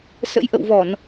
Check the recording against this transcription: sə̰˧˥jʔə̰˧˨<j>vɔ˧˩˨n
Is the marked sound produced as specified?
no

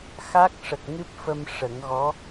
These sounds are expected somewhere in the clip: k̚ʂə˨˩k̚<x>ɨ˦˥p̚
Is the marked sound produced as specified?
no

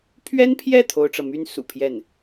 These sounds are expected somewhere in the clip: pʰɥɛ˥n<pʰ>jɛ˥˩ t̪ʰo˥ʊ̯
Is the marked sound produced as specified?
yes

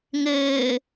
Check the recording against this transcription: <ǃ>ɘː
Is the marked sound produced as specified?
no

